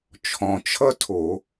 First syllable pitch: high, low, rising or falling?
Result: low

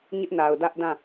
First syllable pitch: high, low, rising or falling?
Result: high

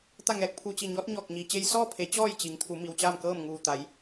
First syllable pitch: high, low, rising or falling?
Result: falling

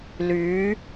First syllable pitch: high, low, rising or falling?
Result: rising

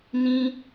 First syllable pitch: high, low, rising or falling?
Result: high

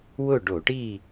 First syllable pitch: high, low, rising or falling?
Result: falling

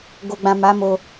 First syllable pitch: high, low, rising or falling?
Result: low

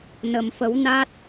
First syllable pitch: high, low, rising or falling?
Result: low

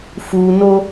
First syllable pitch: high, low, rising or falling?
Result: low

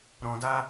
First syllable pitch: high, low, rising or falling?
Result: low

